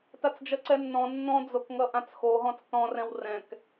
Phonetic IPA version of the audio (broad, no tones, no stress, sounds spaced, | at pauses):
t a t͡s d͡ʒ ʌ ǀ ɛ nː ɔ̃ nː ɔ̃ d͡z o k ŋ ʌ ʔ ã t͡s x o ɦ ɔ̃ t͡s t ɔ̃ r ɛ̃ w r ɛ̃ k